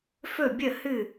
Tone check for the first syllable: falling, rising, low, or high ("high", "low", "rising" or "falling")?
falling